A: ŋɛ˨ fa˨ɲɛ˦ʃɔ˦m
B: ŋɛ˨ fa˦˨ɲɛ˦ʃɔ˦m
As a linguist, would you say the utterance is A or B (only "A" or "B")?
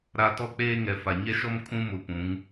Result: A